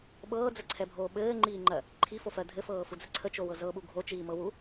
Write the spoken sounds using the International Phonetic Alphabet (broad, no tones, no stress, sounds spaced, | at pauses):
ɓ ɤː d͡z ə ǀʰ ɛ bʱ oː ɓ ɘː ŋ͡ǃ iː ŋ͡ǃ ɜ | ǃʰ i f o f ɜ dʱ ɘ f ɤː f u d͡z ə ǀʰ ə t͡ʃ o w ɤ z ɤ ɓ u ɡʱ o t͡ʃ iː m ɤ w u